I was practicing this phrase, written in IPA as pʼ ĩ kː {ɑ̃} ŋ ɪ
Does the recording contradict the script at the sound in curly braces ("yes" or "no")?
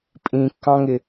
no